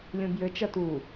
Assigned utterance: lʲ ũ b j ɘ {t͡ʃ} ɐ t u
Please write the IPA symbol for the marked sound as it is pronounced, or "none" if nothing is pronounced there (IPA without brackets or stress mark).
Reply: t͡ʃ